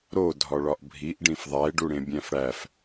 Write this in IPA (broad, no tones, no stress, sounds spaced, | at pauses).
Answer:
ɾ o dʱ ɒ ɭ ɒ ʔ bʱ i ʔ ɖ ĩ f ðˤ æ e̯ ɖ u ɽ ẽ bʲ æ̃ f ɽ æ f